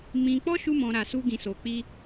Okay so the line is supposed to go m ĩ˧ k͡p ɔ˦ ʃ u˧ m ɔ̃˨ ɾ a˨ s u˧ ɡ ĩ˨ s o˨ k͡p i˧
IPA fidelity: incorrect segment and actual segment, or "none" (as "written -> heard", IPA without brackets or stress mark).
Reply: none